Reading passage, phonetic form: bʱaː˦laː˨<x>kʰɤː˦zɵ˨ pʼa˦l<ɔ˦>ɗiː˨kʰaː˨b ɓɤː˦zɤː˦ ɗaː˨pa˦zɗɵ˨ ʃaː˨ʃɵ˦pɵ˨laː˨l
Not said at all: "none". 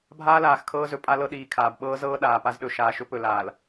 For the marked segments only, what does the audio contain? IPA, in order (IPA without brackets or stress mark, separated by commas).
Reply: x, ɤ˦